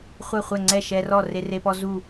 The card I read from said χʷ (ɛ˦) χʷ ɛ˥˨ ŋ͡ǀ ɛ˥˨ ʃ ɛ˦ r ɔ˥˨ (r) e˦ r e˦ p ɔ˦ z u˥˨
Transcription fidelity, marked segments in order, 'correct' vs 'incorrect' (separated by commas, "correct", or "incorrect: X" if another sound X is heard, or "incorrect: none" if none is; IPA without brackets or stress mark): incorrect: ɛ˥˨, correct